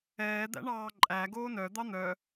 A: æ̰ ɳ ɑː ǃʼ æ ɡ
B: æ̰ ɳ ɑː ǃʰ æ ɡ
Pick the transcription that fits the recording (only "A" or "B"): A